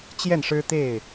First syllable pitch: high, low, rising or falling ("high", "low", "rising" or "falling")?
falling